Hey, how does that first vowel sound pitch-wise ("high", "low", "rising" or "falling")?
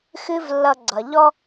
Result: high